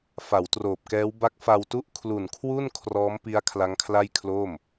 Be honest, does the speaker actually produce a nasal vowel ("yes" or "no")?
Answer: no